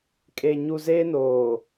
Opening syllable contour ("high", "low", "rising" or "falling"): low